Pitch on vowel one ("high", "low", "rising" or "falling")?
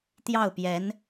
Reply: falling